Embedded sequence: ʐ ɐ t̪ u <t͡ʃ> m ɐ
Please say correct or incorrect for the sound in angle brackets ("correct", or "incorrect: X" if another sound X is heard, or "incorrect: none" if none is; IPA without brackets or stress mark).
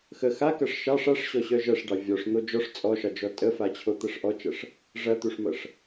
incorrect: ʂ